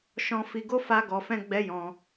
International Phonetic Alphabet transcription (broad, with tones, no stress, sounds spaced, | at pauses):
ʃ ɔ̃˦ f i˧ ɡ o˦ f a˦ ɡ ɔ˧ f ɛ̃˦ ɡ͡b ɛ˦ j ɔ̃˧